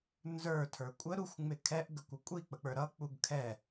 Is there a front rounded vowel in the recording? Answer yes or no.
no